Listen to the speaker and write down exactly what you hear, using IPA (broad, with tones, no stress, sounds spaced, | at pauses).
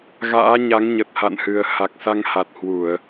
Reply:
ɣ a̰ː˧˥ ɲ a˨˦ ŋ ɲ ə˨˩ t̚ h a̰˧˨ n h ɨ˨˩ ə̯ h a˨˩ k̚ s a˧ ŋ h a˨˩ t̚ h w u˧˩˨ ə̯